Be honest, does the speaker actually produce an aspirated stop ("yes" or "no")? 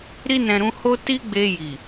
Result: no